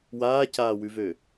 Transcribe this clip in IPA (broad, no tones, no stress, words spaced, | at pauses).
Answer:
waːcaːwʉvø